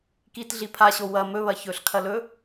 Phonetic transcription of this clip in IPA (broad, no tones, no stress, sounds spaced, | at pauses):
k i t ɮ i pʰ a ɕ o w ɐ m ɵ β ɐ ç ɵ ɬ kʰ ɐ l ɵ